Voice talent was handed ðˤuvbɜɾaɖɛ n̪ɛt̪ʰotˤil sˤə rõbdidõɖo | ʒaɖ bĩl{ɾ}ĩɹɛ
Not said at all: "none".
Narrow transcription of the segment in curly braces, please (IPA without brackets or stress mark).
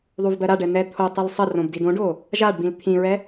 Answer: t̪ʰ